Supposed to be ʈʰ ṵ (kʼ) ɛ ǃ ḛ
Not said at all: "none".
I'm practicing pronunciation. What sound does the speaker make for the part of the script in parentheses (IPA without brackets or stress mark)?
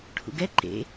ɡ